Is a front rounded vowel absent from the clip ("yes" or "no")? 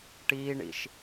yes